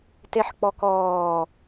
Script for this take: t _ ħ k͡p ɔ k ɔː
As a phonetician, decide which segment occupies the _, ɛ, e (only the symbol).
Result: e